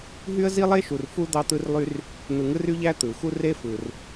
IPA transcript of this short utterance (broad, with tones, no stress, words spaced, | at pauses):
ɦy˥ə̯zi˥lˠe˥ ʃu˨rfu˥ d̪ɑ˦t̪ɯ˦rlˠy˦r | n̪ɯ˨ŋɯ˥ry˥ʎæ˥ t̪ɯ˩xu˦ re˥fɯ˩r